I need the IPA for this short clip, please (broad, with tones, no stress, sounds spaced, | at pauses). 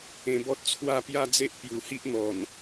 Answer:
ẽ˧ b ɔ˦ t̚ t͡sʰ w a˥˧ p j a˦ d͡z e˦ ʔ p j u˨˩ h i˦ ʔ n̪ ɔ˨˩ n